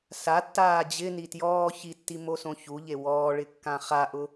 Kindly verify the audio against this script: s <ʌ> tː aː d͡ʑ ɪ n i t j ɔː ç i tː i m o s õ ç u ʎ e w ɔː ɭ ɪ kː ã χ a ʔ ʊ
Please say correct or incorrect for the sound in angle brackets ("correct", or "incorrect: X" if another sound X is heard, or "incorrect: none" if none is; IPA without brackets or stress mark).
incorrect: a